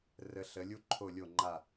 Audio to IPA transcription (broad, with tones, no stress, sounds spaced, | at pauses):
r ə˩˧ ɬ ə˩˧ lʲ u˧ ǃʰ o˧˩ lʲ o˧˩ ŋ͡ǃ a˧˩